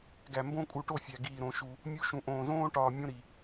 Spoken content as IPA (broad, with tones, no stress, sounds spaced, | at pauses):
ɡ æ˨ m b õ˧ kʼ u˨ ʈ o˦˨ fʲ æ˨ ɡ iː˨ ɾ õ˨ ʃ u˨ | mʲ u˦ ʃ ũ˨ ʔ õː˨ z õː˦ ʈ ɒː˧ mʲ õ˦ ɾ i˨